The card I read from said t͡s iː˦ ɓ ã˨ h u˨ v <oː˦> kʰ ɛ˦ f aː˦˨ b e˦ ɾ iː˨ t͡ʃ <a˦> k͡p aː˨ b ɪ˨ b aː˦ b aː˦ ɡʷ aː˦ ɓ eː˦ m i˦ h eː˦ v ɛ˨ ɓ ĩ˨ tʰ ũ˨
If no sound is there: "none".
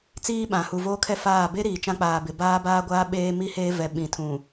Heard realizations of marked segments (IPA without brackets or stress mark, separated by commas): oː˦, ã˦